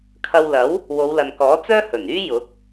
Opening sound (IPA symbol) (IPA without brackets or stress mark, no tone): kʰ